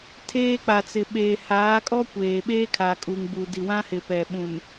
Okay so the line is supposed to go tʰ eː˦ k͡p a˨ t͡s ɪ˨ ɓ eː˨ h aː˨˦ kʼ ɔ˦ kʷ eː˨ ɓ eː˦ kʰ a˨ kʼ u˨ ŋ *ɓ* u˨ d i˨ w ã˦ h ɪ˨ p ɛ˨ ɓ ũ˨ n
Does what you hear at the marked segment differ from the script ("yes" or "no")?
yes